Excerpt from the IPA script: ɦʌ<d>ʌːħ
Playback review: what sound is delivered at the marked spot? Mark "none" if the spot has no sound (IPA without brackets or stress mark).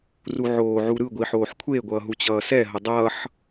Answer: dˤ